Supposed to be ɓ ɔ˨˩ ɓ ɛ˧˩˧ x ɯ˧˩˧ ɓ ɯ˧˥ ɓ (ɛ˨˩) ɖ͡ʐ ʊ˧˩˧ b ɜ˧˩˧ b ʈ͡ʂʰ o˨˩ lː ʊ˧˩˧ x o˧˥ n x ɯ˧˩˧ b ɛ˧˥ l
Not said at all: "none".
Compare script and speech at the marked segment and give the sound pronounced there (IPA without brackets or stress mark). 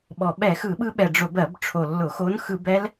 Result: ɛ˨˩